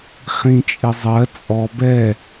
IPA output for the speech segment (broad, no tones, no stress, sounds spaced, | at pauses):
χ ĩ t͡ʃʼ ɪ zˤ ɜ t͡sʼ ɔ b ɛ